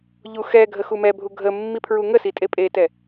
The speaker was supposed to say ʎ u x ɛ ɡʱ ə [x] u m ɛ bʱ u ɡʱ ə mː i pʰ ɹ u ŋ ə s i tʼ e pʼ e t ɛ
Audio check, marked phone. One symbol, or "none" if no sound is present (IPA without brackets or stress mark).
x